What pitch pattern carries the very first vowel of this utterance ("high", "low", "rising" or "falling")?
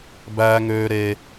high